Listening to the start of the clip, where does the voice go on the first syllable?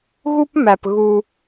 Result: high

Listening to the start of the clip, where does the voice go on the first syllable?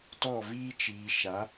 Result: falling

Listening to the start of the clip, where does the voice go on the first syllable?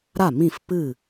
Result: falling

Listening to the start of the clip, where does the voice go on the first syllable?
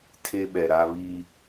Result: high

